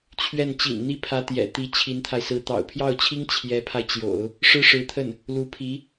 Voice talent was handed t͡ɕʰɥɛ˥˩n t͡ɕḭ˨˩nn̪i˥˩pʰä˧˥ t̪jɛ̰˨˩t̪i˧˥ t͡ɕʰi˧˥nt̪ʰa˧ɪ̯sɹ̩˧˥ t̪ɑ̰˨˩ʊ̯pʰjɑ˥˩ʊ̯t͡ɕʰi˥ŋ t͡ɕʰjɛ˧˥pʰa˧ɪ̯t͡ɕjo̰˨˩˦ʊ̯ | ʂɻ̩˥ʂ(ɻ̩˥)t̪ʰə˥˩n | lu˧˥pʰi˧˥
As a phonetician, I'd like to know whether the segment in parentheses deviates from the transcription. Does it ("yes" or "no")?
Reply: yes